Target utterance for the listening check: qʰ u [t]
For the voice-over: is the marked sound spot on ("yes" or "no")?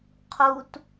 yes